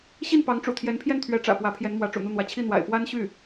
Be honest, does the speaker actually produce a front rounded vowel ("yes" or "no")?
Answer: yes